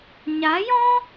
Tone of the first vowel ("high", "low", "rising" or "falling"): rising